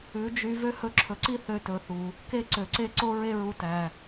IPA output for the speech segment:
ʉ˨˦ d͡ʒ y˧ v ø˦ h ɵ˧ ǁʰ ɵ˨ ǀ i˦ θ ø˧ t ɵ˨ θ u˨ | k e˦ ǀ ø˨ ǀ e˦ ǀ o˦ ɹ e˦ ɹ u˧ t æ˨

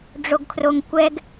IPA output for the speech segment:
ɖ͡ʐ o ɡ kʰ r o ŋ kʷ ɛ ɡ

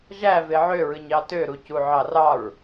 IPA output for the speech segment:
ʒ æ v e ʕ ø ɹ ɯ ɲ ɑ t ø ɾ u c u ʕ ɑ r ɑ ɹ

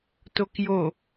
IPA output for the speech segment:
t o k j o

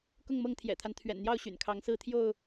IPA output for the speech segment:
k ʊ˥˨ ŋ m ɤ˥˨ ŋ t̪ʰ j ɛ̰˨˩ t̪ʰ a˦ n t̪ʰ ɥ ɛ̰˨˩ n n̪ j ɑ˥˨ ʊ̯ ɕ y̰˨˩ n kʰ ɑ˨˦ ŋ s ɹ̩˥˨ t̪ʰ j o˥˨ ʊ̯

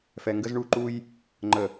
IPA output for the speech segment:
f ɛ˨ ŋ ɡ ə˦ z ɳ u˦˨ ǃ u˦ j | ŋ͡ǃ ə˨

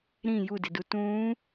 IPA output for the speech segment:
ɾ ĩ j u d ɪ d u t ũː

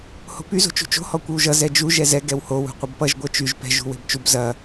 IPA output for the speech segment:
h o̤ p y z o̤ t͡ʃ ṳ t͡ʃ o̤ h ɔ kʷ e w ʒ ʌ z ɛ d͡ʒ u ʒ ɛ z ɛ ɡ ɛ w h o w ṳ qʷ ɐ b p ʌ ʒ ɡʷ ɛ t͡ʃ y ʒ p ɛ̤ ʒ ṳ w e̤ b t͡ʃ u b z ɐ

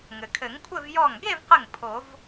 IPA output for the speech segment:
ŋ ɘ˩ kʰ ɘ˨˩˦ ŋ kʷʰ ɘ˥˧ v j ɔ˧˩ ŋ ɡ e˥˧ v q ɘ˧˩ ŋ pʰ o˨˩˦ v

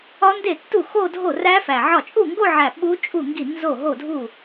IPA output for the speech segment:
ɒ˦˥ n d e˥˩ tː u˥˩ x o˥˧ dʱ o˥˩ r æ˦˥ f æ˨˩ ʕ ɒ˥˩ t͡ʃʼ u˥˩ ŋ ɡ o˥˧ ʕ æ˨˩ ɓ u˦˥ t͡ʃʼ u˥˩ ŋ ɡ i˥˩ n z o˥˩ ɦ o˥˩ dʱ u˥˩

